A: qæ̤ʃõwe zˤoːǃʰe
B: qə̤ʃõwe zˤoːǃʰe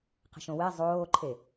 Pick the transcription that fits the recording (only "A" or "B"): B